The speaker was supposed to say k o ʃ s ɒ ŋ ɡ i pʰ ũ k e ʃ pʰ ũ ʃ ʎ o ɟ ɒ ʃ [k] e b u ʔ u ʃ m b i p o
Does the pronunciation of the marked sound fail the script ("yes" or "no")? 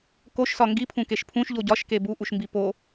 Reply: no